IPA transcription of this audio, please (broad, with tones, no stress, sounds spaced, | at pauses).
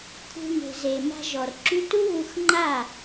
kʷʰ e̤˧ ŋ e̤˨ z e˨ m a̤˧ ʒ ɔ˨ r ǁ y˦ t u˦ β u˧ x ŋ͡ǃ a˦˨